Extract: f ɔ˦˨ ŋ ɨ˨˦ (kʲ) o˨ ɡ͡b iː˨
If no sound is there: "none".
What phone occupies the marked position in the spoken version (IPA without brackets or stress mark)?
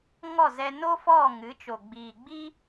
t͡ʃ